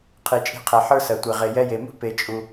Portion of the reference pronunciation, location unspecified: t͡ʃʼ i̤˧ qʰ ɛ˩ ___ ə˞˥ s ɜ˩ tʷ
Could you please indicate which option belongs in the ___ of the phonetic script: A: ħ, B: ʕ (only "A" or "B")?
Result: A